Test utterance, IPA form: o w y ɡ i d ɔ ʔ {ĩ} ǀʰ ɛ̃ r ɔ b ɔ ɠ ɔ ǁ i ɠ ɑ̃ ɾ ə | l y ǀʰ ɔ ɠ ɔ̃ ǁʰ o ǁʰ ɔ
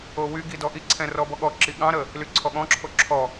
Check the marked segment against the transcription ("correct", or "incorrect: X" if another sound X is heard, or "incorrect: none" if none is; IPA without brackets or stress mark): incorrect: i